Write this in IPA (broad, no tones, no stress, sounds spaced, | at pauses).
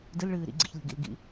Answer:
d ɨ l ɭ ɨː ɾ ḭ ɡ͡ǀ ḭ ç lʲ ṳ ɡ ḭ l ɡ ḭ